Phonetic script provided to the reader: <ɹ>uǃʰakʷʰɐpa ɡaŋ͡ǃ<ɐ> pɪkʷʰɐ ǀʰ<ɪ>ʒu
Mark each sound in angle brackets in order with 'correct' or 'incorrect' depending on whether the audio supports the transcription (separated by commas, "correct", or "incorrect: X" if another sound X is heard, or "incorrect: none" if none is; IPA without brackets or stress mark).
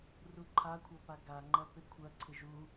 incorrect: r, correct, correct